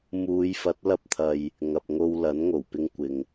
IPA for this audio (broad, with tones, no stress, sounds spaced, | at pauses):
m uː˨˧ j f ɐ˨˥ t̚ l ɐ˧ p̚ t̪ʰ ɐ˨ j | ŋ ɐ˨ p̚ ŋ o˧ w l ɐ˨˥ n ŋ o˨˩ w p ɪ˧ ŋ kʷ ɪ˨ ŋ